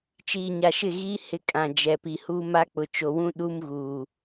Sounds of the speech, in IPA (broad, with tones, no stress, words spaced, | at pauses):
t͡ʃiː˨ɲa˨ʃɪ˦˨ɣiː˦ hɪ˦kʼã˨ d͡ʒɛ˨pi˨ huː˦ma˦k͡pʊ˨ t͡ʃo˨wũ˦ ɗu˦mɣuː˨